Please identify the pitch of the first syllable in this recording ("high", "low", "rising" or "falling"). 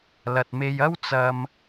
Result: low